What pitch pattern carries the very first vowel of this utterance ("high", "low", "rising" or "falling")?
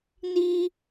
high